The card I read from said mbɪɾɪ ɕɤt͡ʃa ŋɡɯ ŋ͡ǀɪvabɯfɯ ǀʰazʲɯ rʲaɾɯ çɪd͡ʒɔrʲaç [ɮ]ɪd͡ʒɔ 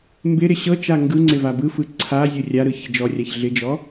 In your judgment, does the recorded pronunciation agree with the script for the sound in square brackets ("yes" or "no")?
yes